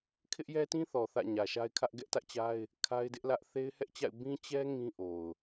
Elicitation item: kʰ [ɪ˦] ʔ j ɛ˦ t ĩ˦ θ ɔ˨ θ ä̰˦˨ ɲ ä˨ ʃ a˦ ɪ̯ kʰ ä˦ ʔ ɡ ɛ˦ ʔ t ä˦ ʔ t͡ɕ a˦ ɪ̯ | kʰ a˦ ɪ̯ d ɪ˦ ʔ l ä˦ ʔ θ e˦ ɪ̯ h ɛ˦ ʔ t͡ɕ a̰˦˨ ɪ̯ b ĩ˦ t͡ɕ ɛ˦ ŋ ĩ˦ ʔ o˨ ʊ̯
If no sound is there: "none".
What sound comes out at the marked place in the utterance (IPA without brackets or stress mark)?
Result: ɪ˦